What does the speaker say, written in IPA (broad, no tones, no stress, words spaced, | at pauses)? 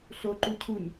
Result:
ɬoǃu cʰuɲ